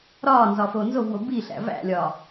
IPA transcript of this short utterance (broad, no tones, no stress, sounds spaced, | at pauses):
ɾ ɒː n z ɒ f oː n z o v w o b i ɬ æ̰ v æ̰ lʲ ɒː